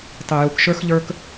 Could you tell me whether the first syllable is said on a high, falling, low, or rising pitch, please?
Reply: low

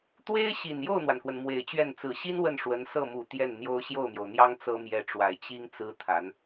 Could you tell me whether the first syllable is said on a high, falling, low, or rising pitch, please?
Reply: high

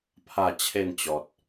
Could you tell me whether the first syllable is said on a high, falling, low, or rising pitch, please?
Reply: falling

